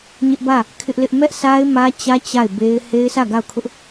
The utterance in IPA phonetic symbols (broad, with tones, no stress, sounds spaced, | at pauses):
ɲ ɪ˦ ʔ b ä˦˨ | kʰ ɪ˦ ʔ l ɪ˦ ʔ m ɛ˦ ʔ s a˦ ɪ̯ m ä˦ t͡ɕ ä˦ t͡ɕ a˦˨ ɪ̯ b e˦ ɪ̯ h e˦ ɪ̯ s ä˦˨ ɡ a˦˨ ʊ̯ kʰ ʊ˦ ʔ